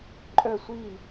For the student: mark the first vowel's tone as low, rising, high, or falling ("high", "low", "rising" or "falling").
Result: falling